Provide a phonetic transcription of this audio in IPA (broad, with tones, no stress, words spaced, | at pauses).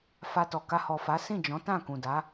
fa˧tɔ˨ka˧ hɔ˨fa˨˦sĩ˦˨ d͡ʒɔ̃˨˦tã˦˨ kũ˨da˨˦